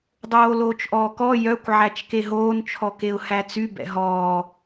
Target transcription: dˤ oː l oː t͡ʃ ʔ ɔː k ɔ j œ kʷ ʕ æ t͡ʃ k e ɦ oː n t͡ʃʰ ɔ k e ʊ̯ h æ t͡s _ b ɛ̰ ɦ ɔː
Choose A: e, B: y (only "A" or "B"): B